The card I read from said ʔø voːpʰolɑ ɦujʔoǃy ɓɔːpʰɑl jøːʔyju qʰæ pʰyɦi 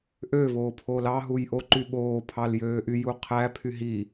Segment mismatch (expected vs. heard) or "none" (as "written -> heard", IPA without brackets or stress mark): ɔː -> oː